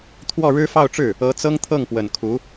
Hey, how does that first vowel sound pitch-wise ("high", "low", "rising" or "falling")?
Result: falling